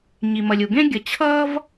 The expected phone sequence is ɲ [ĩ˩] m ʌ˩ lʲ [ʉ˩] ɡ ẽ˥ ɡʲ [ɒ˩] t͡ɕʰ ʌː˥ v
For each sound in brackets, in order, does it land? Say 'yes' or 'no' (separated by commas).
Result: no, no, no